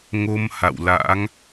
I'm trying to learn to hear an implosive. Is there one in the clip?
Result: no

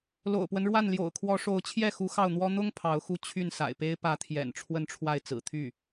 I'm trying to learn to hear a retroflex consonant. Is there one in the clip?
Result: yes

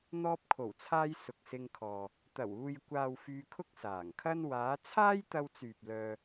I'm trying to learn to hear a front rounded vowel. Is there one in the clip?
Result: yes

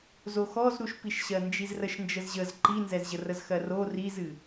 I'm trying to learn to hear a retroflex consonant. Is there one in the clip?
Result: no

